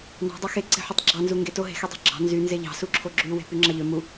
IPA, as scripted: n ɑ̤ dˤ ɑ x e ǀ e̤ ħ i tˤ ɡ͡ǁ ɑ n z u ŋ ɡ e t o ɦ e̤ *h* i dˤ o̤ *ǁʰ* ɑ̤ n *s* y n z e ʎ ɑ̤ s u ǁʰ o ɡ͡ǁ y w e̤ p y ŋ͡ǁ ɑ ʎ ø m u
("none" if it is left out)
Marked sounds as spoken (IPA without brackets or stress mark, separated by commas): x, ɡ͡ǁ, z